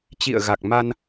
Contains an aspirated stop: no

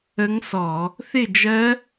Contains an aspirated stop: no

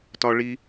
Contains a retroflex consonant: yes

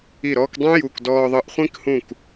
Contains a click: no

